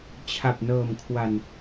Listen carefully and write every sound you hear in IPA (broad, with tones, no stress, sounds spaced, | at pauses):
t͡ɕʰ a˨˩ p̚ n ɤː˨˩ m kʰ w a˨˩ n